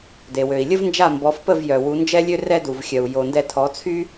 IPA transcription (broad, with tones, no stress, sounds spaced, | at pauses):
d e˩ w ø˩ i̯ lʲ ə˥ v n d͡ʒ a˥˩ m b ɔ˩˥ f p ə˥˩ v j œ˩ w u˩˥ n d͡ʒ ɛ˥ lʲ ø˥ r ɛ˥ d u˩ v xʲ œ˩ u̯ j o˩ n d ɛ˧ tʰ ɔ˩˥ t͡sʰ y˥